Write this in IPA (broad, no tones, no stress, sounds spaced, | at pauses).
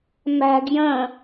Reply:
m æ̤ ɡ j ə̃